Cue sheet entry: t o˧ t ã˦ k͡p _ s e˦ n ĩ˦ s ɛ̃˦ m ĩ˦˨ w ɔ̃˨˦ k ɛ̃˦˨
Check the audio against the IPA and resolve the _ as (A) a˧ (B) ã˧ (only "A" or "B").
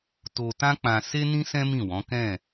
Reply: B